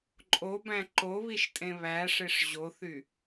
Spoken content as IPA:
ǃʼobæ̃ ǃoβiʃtʼẽ βæʂeʂ ʑoθy

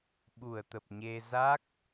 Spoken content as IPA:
ɓu˧˩ə̯t̪ə˨˩p̚ɲe˧ za˦˥k̚

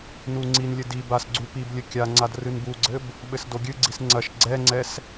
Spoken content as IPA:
nuŋ͡ǀinlʲɘ di basɡ͡ǀu piblʲɘ kʲaŋ͡ǀad rɨnbuɡ͡ǀɘb | ɓɘsdoɡʲɨɡ͡ǀis ŋ͡ǀɐʃ ɡ͡ǀɛŋ͡ǀɛs

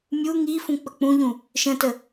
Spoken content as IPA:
mʲu ŋifũ k͡pək͡pũʎũ | ʃə̃tə

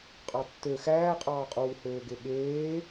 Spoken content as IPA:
qʼɑtːø xæːqʼɑːqʼuːhøː ɡeɠeː

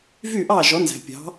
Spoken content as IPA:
vy˥˩ʔɑː˥˩ ʒɔ˩˥nzæ̤˩pʲɑ̤˩˥

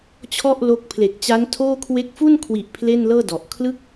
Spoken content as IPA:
t͡ɕʰɔ˥˩ʔ lo˥˩k̚ pʰle˨˩k̚t͡ɕa˦˥ntʰoː˥˩kʰwe˦˥k̚ fu˥˩nkʰwi˨˩ʔ pʰle˥˩nlɤː˥˩dɔ˨˩ʔ kʰlɯ˦˥k̚

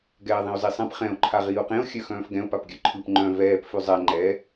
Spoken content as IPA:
ɡɛːðˤẽo̯zisˤɛ̃p χɛ̃o̯ ǃʰaʁiːo̯qẽo̯ xʲœxœ̃ːfɡɛ̃o̯ papɡʲœǃʰɯp ŋ͡ǃœ̃ vɛːp fʉzˤɛ ŋ͡ǃɛ

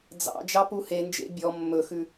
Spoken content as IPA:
d͡zɑ̰ d͡ʒɑpuhend͡ʒḛ bʲɔ mːɵxʉ

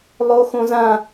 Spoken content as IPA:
lˠoxõzã

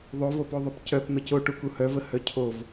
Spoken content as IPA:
ðˤovopoðˤœp cœp n̪əco ʈukuhœvə hœcʰov

